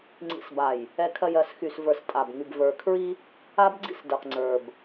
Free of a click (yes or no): no